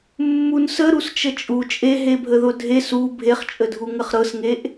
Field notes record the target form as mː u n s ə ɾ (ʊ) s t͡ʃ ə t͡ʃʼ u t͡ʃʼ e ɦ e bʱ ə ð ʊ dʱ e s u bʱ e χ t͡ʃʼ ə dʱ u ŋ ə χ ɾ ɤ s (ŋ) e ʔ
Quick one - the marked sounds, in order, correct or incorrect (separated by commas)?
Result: incorrect, correct